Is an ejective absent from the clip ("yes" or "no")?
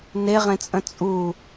no